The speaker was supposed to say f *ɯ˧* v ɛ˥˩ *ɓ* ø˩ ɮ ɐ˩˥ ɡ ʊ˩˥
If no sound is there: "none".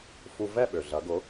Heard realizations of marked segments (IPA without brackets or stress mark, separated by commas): u˧, ɓ